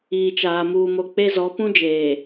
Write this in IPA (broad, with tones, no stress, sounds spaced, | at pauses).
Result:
iː˨ t͡ʃ aː˨ m uː˨ m o˨ k͡p e˦ z ɔ˨˦ p ũ˦ d͡ʒ eː˨